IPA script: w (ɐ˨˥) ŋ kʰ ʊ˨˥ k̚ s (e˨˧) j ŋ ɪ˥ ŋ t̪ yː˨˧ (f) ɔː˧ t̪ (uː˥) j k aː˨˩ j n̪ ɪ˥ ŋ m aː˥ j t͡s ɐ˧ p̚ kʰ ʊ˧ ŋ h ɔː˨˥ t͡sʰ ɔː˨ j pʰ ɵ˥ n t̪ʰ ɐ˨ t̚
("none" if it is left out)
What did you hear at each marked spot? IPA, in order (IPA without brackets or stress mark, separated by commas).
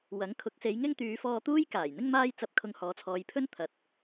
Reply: ɐ˨˥, e˨˧, f, uː˥